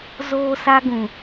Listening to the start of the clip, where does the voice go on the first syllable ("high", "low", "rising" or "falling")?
high